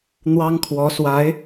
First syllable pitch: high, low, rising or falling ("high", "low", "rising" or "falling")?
high